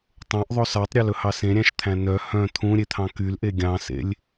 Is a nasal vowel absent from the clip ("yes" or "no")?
no